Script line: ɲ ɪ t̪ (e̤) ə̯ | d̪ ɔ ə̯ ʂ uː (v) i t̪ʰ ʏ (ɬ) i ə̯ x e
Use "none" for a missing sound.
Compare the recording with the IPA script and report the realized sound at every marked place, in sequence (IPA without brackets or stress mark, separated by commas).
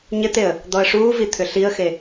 e, v, ɬ